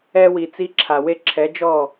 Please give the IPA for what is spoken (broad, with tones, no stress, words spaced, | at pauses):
ɛ˧wi˨ t͡si˧ǁʰa˨we˦ ǁʰɛ˨˦d͡ʒɔ˦˨